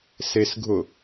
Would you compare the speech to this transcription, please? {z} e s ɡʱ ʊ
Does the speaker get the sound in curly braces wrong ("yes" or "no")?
yes